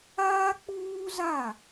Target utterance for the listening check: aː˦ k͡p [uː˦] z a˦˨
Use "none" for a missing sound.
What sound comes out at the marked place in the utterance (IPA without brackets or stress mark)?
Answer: uː˦